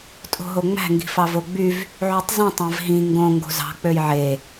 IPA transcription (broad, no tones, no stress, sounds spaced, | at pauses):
tʼ o̤ ɦ o ŋ͡m æ̤ ŋ ɡ i̤ f ɑ v o ɡ͡b y v | ʕ y tˤ z ĩ tˤ æ̃ v ɦ ĩ ŋ ɡ õ ŋ ɡ o̤ z ɑ̤ k͡p ø j ʕ e